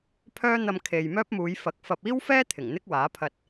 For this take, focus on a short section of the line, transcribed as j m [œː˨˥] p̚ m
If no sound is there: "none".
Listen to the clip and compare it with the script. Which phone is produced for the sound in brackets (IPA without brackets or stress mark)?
œː˥